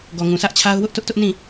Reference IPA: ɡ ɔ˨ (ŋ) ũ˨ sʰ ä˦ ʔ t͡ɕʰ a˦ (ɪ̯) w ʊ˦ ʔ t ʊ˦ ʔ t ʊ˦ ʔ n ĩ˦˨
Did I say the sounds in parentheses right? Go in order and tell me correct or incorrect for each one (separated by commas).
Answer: correct, incorrect